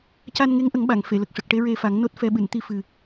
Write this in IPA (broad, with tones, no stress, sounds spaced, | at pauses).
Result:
c a˧ n ŋ e˧˥ ŋ ʔ ə˨˩˦ ŋ ɓ a˨˩˨ ŋ f e˨˩˨ l ə˨˩ k̚ ʂ ə˨˩ k̚ ʈ e˧˥ ɹ e˧ f a˨˩˦ ŋ n o˦˥ t̚ f ɛ˧ ɓ ɨ˨˩˨ n t̪ i˧ f ɨ˨˩